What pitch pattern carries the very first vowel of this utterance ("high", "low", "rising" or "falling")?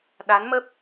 rising